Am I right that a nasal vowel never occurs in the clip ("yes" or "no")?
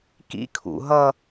yes